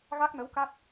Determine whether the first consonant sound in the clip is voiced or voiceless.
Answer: voiced